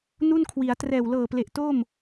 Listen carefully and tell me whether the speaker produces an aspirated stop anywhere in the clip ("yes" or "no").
yes